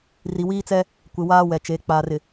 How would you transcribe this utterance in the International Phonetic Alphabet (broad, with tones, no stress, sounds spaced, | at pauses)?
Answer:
r i˨ w iː˦ t͡s ɛ˦ | kʷ ɪ˨ w aː˦ w ɛ˨ t͡ʃ e˨˦ k͡p aː˨ r ɪ˨